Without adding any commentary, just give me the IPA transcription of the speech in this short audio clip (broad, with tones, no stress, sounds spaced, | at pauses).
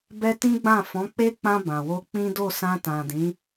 b ɛ˦ t ĩ˦ ɡ͡b ã˦˨ f ɔ̃˨˦ k͡p e˦ k͡p ã˧ b ã˨ w o˧ k͡p ĩ˦ d o˦˨ s ã˧ t ã˨ d ĩ˨˦